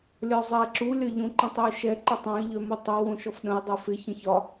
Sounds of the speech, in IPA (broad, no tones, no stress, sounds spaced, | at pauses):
lʲ ɒ zˤ ɛ ǁ u lʲ ɒ ʎ õ ǃ ə̃ tˤ ɛ ʊ̯ ʃ ɛ ǃ ɪ tˤ ɛ̃ ə̯ ʎ œ m u tˤ o w õ ʃ ɔ f ɗ ə̃ ɪ̯ dˤ ɛ f ɪ ç ə̃ ç ɒ